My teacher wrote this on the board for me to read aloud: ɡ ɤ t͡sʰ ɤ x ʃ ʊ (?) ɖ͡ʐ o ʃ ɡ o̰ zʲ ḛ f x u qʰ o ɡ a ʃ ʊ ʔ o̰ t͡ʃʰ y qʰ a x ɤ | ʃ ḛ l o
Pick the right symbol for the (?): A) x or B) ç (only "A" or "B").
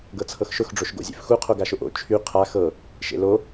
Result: A